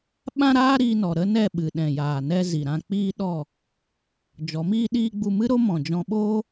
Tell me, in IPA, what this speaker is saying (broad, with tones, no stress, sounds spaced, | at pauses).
ɓ ã˦ ɾ aː˦ ɾ iː˧ n ɔ˨ ɾ ə˦ n ɛ˦˨ ɓ ɨ˨ ɗ ɛ̃˨ j aː˨ n ɛ˧ z i˨ ɾ ã˧ k͡p iː˦ ɗ ɔ˦˨ | d͡ʒ ɔ˨˦ m iː˦ ɗ iː˦ ɡ͡b u˧ m ɨ˦ ɾ o˦ m ɔ̃˨ d͡ʒ ɔ̃˧ ɓ oː˦